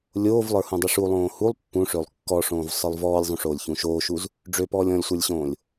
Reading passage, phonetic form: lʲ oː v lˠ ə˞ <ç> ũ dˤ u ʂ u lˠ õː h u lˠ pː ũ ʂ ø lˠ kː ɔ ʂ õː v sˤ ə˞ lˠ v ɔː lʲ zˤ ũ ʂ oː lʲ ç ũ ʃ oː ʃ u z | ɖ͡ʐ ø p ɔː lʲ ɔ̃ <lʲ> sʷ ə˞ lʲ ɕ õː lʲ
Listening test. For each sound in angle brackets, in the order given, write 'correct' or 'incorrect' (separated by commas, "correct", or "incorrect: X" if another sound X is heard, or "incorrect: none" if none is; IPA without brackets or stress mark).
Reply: incorrect: h, correct